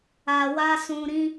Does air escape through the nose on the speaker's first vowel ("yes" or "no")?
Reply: no